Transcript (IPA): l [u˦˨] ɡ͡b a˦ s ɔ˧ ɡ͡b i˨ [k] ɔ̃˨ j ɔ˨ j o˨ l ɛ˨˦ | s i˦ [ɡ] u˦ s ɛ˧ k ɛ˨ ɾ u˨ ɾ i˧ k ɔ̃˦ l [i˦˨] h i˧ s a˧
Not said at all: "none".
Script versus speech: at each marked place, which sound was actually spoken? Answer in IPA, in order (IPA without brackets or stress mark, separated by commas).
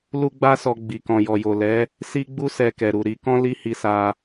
u˦, k, ɡ͡b, i˦